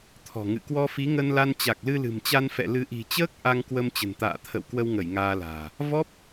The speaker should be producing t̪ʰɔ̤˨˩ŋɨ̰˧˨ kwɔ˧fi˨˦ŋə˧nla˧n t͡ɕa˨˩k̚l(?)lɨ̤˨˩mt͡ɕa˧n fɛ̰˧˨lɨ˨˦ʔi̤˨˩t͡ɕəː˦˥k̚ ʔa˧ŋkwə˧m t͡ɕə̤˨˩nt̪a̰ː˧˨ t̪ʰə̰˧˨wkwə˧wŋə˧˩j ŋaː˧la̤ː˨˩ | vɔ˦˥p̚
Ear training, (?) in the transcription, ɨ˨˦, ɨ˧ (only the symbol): ɨ˧